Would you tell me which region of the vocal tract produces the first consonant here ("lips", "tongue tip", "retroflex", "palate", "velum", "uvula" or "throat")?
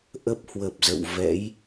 throat